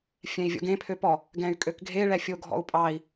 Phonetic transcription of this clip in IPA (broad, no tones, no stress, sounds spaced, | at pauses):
fʲ ɛ̃ i̯ vʲ ɔ̰ ɡ ẽ pʰ ø p ɔ | ɡ ɛ̃ y̯ kʼ ø k ɡʱ e ɭ ɛ fʲ o ɡʱ ɔ̰ u̯ pʼ ɑ i̯